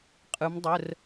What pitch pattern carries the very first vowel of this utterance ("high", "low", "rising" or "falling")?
rising